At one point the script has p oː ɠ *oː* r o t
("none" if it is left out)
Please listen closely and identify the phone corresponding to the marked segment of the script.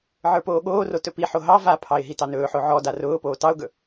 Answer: oː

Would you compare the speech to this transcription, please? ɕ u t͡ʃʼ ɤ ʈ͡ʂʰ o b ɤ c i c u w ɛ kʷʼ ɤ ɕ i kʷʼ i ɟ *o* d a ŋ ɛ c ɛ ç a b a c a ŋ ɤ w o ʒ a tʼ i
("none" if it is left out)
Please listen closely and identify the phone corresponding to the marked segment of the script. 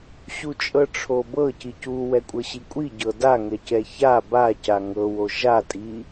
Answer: ɤ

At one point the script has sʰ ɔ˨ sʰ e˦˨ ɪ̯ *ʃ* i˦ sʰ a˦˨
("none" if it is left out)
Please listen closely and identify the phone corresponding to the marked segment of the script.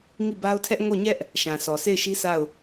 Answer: ʃ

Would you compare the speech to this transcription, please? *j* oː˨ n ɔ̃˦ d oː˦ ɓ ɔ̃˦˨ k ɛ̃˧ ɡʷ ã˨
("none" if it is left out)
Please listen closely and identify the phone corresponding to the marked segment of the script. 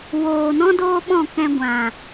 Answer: w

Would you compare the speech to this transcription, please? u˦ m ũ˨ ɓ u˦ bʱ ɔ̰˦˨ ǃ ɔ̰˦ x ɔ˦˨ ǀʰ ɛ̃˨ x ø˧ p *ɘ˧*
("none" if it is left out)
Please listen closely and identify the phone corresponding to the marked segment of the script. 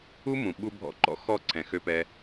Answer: ɛ˧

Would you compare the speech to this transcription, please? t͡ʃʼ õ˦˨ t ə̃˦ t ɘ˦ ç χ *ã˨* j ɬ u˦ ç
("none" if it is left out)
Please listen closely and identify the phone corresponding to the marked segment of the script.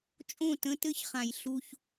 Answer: ã˨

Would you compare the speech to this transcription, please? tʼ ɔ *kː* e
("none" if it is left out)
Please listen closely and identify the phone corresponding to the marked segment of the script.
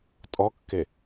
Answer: kː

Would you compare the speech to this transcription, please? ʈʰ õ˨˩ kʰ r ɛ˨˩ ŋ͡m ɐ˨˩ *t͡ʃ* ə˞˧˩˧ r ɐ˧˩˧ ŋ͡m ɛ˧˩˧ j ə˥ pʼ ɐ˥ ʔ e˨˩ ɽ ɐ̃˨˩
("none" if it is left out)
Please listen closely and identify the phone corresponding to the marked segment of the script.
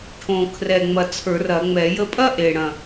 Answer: t͡sʰ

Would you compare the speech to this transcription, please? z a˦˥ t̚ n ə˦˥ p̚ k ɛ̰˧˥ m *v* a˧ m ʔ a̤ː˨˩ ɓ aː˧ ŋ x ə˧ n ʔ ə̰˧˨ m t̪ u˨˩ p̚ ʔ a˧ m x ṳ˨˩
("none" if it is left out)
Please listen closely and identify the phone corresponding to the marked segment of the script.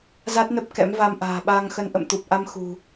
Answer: v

